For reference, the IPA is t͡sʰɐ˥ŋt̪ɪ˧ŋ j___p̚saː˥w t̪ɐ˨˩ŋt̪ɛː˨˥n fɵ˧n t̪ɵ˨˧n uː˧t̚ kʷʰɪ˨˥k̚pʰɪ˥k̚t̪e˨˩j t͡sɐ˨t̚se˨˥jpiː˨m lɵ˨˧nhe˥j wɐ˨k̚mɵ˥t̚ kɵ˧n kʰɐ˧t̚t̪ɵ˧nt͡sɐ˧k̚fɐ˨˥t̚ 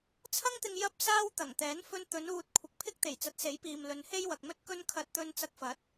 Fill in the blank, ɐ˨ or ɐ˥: ɐ˥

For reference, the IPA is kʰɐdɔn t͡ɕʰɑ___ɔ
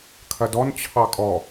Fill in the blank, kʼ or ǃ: kʼ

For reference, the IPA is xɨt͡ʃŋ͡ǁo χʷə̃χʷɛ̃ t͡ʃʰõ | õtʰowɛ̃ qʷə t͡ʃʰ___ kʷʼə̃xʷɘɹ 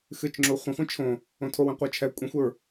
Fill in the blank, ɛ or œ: ɛ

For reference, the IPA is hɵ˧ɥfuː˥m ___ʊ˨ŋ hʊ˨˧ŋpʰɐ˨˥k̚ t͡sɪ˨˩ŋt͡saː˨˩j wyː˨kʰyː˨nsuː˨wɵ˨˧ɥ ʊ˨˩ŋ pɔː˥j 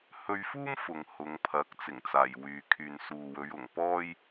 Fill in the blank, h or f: f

